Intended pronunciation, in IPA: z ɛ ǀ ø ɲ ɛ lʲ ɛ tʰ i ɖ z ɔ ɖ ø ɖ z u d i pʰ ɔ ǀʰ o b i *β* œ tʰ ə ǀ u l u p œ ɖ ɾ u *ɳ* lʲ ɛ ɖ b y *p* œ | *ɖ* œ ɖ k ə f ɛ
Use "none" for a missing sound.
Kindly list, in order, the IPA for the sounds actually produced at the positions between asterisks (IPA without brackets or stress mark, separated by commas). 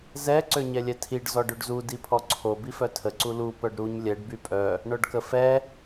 f, ɲ, pʼ, ɳ